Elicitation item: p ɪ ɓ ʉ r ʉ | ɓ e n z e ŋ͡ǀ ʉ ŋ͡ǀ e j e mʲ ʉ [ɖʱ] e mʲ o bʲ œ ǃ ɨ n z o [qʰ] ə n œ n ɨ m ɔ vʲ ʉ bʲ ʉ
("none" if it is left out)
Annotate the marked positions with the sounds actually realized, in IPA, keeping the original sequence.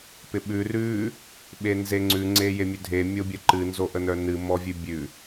dʱ, ʔ

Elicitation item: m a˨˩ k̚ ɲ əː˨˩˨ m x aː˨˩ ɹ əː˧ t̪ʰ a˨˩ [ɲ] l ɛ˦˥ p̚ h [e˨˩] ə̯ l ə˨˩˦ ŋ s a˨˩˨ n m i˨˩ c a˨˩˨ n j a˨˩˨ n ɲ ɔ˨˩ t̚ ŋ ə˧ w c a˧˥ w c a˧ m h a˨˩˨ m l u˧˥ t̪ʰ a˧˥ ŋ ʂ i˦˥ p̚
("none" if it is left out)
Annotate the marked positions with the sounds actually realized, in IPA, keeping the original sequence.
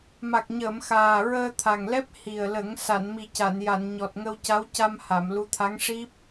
ŋ, i˨˩

